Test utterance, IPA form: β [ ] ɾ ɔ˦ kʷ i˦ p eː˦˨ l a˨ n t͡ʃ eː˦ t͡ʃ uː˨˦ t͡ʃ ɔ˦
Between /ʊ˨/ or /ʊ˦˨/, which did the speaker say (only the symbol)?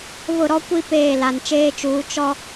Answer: ʊ˦˨